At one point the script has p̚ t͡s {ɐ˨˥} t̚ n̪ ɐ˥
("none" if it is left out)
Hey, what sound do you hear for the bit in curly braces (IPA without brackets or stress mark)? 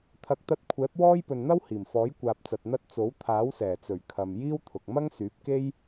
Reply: ɐ˨